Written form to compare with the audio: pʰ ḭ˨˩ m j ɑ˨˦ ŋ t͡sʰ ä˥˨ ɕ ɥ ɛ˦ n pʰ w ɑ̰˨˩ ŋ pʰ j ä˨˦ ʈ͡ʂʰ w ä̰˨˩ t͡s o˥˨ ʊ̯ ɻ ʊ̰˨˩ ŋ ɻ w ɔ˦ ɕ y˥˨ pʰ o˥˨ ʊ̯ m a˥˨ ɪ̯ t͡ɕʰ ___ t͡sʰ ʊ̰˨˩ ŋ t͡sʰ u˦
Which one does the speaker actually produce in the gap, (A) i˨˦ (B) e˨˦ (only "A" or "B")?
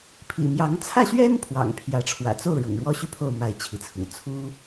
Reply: A